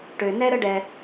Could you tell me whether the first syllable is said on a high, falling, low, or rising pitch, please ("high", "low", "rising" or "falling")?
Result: low